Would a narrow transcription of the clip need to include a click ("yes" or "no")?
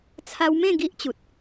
no